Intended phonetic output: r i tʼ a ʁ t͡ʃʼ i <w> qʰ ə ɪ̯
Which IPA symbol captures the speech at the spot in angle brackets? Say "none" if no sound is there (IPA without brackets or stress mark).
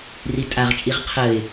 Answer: ʁ